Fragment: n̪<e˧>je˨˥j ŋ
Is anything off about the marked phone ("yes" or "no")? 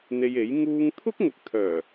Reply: no